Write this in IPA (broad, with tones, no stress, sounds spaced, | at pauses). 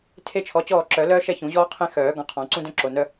tʰ e˥ t͡ʃʰ ɔ˨˥ t͡ɕ ɔː˥˨ ǁ œ˨˩˦ l œː˥ ʃ ɛ˥˨ ç ũ˨˩˦ ʑ ɔː˥ qʰ ẽ˥ x œː˨˩˦ ɡ ɔ̃˨˥ qʰ ɔ̃˨˩˦ ǀ ũ˥ d œ̃˥ ǁ o˩˧˩ n œ˥